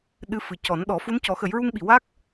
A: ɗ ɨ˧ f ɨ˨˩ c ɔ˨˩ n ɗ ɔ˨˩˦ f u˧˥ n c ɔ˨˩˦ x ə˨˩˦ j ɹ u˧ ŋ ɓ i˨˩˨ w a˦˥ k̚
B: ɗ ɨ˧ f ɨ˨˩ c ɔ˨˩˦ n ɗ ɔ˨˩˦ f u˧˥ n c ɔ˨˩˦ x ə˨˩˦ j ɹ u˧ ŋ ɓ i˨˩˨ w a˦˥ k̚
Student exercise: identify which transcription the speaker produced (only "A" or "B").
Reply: B